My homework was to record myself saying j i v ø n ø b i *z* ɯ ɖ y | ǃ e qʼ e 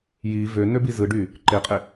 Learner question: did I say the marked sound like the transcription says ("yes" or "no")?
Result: yes